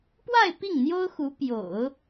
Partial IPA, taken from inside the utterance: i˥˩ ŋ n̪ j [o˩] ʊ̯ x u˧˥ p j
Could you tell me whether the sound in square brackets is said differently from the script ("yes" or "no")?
yes